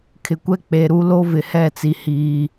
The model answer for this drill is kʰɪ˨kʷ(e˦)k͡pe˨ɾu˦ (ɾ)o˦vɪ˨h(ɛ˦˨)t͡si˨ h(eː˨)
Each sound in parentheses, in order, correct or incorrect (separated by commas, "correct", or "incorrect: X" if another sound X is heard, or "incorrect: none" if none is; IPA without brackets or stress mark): incorrect: ɛ˦, incorrect: l, correct, incorrect: iː˨